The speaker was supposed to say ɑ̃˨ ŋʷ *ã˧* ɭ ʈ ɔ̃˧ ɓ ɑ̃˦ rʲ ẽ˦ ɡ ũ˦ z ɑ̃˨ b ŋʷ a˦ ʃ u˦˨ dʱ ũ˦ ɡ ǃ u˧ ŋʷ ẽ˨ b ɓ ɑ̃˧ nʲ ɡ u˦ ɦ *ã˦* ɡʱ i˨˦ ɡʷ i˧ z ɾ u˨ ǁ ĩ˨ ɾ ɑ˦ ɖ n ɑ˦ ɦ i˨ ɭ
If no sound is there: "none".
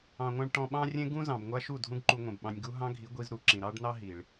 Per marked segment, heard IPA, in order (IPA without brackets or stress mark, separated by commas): ã˧, ɑ̃˦